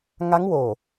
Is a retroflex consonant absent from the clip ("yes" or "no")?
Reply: yes